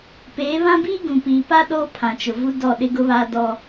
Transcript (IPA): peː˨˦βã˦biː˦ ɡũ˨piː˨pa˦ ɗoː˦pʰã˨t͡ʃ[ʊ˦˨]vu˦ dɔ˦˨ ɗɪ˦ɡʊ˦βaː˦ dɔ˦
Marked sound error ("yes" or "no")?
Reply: yes